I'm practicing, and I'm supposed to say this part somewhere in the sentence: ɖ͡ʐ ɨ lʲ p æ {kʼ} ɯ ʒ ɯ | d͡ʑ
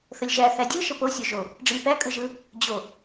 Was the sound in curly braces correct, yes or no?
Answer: yes